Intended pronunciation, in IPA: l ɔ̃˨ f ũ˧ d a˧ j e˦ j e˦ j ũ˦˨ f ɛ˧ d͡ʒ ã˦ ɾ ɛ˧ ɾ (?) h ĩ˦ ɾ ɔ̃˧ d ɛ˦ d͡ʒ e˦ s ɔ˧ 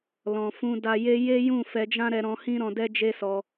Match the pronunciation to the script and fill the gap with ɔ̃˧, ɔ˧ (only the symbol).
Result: ɔ̃˧